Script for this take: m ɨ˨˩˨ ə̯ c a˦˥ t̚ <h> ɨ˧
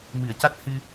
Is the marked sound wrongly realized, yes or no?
no